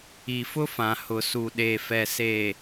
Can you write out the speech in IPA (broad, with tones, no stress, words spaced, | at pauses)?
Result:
i˨fʊ˦fã˨ hʊ˨su˨ɗeː˨ fɛ˨seː˨